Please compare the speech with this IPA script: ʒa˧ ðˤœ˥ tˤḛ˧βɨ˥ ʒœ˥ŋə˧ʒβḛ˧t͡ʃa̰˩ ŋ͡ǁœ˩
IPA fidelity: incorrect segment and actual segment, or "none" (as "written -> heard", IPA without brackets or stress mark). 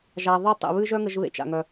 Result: ŋ͡ǁ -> ŋ